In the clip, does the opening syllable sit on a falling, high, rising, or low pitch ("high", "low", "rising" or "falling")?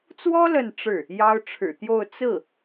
high